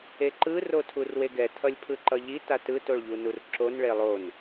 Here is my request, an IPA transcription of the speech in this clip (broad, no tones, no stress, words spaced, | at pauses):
eǃɯ rotʰurweɡɛ tʰʌlʲpʰɯǃʌʎi tatɯ toɭʎunurǁon ɭelˠon